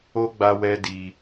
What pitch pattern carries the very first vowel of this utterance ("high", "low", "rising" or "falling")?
high